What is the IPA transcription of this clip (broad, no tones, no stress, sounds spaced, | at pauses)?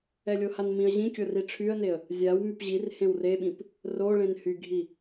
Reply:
ɛ lʲ o h a n m ĩ ə̯ ʑ ĩ kʲ o r i ʈ͡ʂʰ y ə̯ n e ə̯ | zʲ a w m y p ʑ i r h ẽ w r e ɓ ĩ p | r o ɭ ẽ n h y ɡʱ i